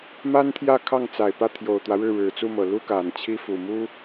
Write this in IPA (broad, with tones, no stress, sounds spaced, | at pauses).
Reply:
m a˥ n t̪ʰ j ä˥˧ kʰ ɑ˥˩ ŋ t͡s a˨˩ ɪ̯ p ä˥˩ t̪ʰ j o˨˩ ʊ̯ t̪ w ä˦ ɻ ɻ̩˥˩ ɻ ɻ̩˨˩ t͡s u˥˩ m ɤ˨˩ l u˥ k a˨˩ n t͡ɕʰ i˥ f u˨˩ m u˥